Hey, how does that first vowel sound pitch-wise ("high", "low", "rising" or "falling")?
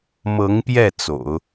rising